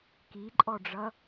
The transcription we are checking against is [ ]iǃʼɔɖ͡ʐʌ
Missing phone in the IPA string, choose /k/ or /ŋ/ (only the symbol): k